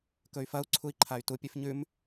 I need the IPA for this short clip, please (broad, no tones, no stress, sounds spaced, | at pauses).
k ɵ y̯ f ɐ u̯ ǀʰ u i̯ ǃʰ a y̯ t u pʲ ʉ f ɲ ʉ m